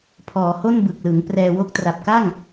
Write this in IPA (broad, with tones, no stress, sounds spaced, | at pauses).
pʰ ɔː˩˦ h o˥˩ n b ɯ˨˩ k̚ l ɯ˩˦ ŋ p r ɛː˧ w o˥˩ k̚ t r a˨˩ p̚ k a˥˩ ŋ